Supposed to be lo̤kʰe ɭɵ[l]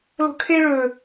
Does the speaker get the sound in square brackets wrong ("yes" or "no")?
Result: yes